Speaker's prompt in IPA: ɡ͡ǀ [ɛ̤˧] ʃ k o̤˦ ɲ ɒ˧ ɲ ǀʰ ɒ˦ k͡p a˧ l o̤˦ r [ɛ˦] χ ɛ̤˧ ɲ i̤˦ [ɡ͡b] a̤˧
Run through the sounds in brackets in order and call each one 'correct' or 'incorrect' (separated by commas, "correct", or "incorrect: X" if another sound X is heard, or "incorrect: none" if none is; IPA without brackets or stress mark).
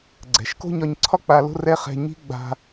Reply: incorrect: ɛ̤˨, correct, correct